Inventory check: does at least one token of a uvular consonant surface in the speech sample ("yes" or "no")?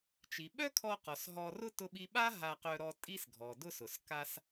yes